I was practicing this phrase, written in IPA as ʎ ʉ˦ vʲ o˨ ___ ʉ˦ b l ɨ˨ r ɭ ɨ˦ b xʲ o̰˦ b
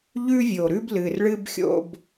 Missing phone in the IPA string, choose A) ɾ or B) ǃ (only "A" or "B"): A